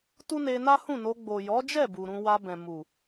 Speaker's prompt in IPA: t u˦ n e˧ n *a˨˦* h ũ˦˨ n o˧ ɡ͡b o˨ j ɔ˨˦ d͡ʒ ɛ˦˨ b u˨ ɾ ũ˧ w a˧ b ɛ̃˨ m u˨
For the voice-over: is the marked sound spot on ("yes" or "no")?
no